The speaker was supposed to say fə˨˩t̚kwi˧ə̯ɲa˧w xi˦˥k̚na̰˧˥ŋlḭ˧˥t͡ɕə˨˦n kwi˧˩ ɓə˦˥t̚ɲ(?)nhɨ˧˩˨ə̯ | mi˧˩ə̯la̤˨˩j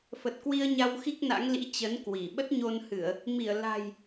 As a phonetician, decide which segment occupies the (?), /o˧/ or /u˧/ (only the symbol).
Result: o˧